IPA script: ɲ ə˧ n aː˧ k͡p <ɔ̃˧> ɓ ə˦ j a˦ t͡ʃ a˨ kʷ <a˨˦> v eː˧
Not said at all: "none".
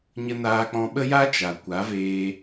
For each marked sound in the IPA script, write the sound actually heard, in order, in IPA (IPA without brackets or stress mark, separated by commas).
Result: ɔ̃˧, a˨˦